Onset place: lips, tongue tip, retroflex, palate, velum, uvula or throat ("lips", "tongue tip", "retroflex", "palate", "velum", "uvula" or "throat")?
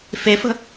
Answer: lips